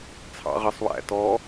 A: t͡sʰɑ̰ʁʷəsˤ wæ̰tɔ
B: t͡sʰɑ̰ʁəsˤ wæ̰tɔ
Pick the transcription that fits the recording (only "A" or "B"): B